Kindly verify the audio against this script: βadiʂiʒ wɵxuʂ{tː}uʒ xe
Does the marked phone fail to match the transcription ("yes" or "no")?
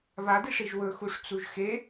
yes